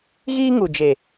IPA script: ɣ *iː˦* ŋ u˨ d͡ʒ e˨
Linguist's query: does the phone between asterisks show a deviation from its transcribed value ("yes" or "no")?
no